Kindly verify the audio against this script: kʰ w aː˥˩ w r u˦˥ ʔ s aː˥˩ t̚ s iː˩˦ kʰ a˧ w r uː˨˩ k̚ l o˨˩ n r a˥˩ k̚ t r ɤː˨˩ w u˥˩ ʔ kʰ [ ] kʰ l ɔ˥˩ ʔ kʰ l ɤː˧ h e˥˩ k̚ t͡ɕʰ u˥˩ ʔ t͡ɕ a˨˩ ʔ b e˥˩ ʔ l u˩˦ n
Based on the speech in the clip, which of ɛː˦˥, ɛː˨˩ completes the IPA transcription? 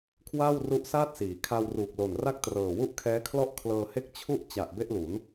ɛː˦˥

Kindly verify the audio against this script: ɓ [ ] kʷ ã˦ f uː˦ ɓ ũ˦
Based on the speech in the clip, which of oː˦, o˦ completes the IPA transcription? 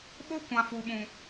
o˦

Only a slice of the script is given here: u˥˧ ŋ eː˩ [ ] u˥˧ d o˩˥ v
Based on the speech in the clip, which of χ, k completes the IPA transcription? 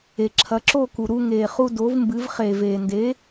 χ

